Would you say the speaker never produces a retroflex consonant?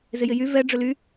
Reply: no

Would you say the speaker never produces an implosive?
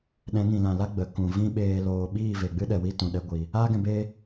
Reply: no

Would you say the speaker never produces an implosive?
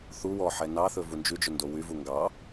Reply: yes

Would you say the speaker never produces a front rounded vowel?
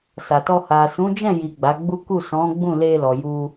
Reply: yes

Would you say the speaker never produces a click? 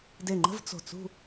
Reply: no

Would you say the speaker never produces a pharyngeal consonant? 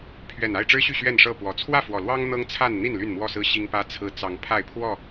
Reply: yes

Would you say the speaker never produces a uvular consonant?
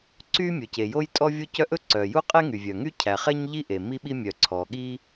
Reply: no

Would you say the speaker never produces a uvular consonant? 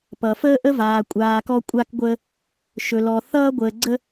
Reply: yes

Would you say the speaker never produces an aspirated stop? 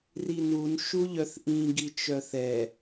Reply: yes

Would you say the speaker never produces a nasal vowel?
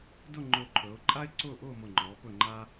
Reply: yes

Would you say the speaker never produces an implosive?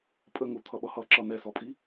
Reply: no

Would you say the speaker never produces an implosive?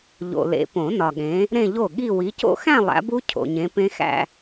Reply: no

